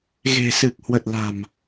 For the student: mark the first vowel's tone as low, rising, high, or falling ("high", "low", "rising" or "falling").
low